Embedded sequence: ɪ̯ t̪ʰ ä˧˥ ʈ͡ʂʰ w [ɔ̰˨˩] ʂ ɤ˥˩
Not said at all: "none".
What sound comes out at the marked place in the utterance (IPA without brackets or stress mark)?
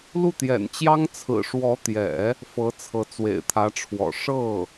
ɔ̰˨˩